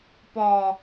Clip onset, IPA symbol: p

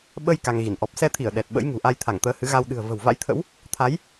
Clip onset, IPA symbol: ɓ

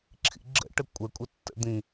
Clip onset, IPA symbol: ǁʰ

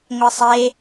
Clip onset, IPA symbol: ŋʷ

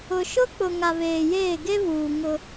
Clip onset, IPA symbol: ʊ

